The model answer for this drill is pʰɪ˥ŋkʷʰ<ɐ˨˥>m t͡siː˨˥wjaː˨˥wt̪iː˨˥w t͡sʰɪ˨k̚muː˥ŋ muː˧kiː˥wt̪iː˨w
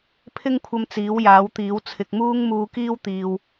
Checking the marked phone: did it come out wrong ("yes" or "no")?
yes